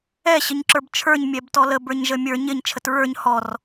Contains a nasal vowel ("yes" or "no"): no